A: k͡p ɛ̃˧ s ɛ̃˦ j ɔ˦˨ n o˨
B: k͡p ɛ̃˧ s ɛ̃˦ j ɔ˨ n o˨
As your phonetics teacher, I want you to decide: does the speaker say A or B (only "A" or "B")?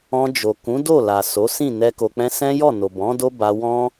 A